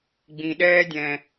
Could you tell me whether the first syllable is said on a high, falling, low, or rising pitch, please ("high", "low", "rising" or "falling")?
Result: low